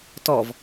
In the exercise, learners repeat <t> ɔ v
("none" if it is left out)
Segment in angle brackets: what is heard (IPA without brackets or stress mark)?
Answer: t